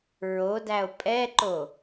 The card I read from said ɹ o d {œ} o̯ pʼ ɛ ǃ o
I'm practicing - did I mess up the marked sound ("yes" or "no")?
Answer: yes